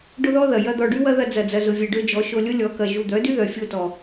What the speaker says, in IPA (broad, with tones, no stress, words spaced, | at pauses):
ɖʊ˦ðɔ˦ ðɐ˨ jɐ˦d̪ɔ˧ ɖy˦wɐ˦ðɐ˧ d͡zɐ˨d͡zɐ˨zʊ˨vʲe˨ ɖø˦d͡ʒɔ˨˦ʃo˧ lʲʊ˦lʲɔ˨˦kɐ˨ ʒu˨d̪œ˨˦dy˦ ðœ˨ fʲo˧tɔ˨